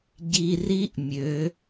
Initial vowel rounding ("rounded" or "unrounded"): unrounded